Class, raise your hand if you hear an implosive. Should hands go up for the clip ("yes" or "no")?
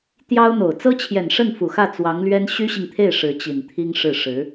no